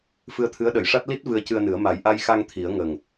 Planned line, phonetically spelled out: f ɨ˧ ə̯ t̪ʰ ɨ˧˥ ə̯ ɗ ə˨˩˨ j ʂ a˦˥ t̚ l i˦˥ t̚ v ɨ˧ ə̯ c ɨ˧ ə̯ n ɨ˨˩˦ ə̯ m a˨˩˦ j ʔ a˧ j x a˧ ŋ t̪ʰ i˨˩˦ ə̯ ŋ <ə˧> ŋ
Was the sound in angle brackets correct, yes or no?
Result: no